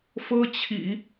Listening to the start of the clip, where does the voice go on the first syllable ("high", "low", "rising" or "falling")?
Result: high